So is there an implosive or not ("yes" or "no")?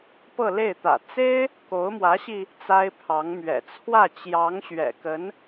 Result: no